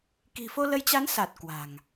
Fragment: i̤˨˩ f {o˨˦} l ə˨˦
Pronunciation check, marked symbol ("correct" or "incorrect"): incorrect